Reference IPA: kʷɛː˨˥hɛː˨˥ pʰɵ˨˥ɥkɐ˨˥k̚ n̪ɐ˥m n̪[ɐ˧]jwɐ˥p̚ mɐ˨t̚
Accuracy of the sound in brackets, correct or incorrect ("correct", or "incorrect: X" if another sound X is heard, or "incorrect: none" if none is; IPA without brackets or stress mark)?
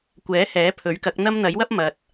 incorrect: ɐ˨˥